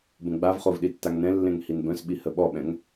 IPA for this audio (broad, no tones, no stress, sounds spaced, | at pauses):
b ə̃ ɡ͡b a v χ o v ɗ i tː a ŋ n ɛ̃ lː ẽ ŋ h i n b œ̃ s ɓ i h ə ɓ ɔ ɓ ɛ̃ ŋ